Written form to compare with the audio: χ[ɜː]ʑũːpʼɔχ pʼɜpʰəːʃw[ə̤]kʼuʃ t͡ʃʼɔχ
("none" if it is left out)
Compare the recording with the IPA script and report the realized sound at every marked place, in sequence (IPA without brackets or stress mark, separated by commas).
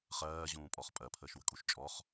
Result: ɜː, ə̤